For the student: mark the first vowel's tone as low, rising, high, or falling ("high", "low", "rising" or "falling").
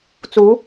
rising